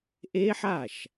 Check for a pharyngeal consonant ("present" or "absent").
present